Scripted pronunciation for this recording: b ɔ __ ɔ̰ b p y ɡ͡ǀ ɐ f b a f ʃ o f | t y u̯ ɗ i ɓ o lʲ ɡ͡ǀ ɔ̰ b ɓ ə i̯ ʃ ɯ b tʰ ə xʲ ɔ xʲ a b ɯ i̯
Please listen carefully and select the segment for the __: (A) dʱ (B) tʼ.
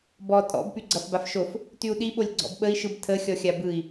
B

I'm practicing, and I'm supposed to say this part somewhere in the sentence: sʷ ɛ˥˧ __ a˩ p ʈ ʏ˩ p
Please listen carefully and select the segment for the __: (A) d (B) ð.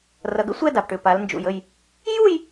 A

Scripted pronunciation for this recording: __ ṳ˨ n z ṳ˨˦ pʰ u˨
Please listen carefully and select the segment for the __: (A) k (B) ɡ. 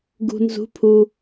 B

